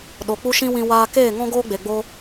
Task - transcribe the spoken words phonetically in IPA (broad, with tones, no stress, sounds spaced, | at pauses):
ɗ o˨ k͡p u˦ ʃ ĩ˦ w ĩ˧ w aː˧ k eː˦˨ ŋ ɔ̃˦ ɡ oː˦ ɡ͡b e˨ ɡ͡b o˦